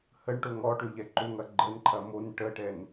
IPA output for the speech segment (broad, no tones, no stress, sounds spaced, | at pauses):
h ə ɳ ʈ o ŋ ɔ ʈ ø ʎ ɛ ǃ ʏ ŋ ɐ ɡ͡ǃ ə n ǃʰ ɐ m o n ʈ ə ʈ ɛ n